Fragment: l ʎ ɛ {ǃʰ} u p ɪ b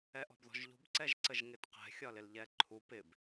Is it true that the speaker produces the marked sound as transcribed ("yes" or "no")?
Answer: yes